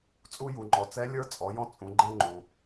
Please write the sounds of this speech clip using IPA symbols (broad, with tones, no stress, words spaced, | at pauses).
t͡sʼu˧ju˩ŋ͡ǃɔ˩ t͡sɛ˧˥lʲə˞˧˥ t͡sʼɔ˩˧jɔ̃˧t͡sʼũ˩˧ ɡ͡ǃɛ̃˧ŋ͡ǃũ˩